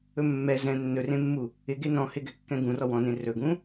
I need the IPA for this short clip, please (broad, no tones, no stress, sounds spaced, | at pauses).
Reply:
ɵ mː ɛ z ɛ̃ nː ɵ r ẽ mː u | ɪ ɡ e n ɔ̃ h ɪ ɡ ɛ kː ɛ̃ ɡ ũ r ɔ w ɔ̃ n ẽ r ɵ ɡ ũ